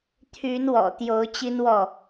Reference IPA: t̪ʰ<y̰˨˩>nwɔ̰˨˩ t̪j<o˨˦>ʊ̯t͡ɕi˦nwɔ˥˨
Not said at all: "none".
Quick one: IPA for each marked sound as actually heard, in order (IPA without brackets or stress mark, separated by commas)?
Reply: y˨˦, o˨˦